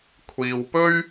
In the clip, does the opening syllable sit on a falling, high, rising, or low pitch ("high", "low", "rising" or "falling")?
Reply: low